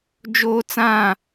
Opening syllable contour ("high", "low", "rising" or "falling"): high